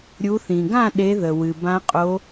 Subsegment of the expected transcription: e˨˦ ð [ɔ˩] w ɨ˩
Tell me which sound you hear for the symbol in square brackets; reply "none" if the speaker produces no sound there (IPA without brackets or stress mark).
ə˩